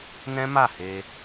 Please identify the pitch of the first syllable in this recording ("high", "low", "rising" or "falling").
high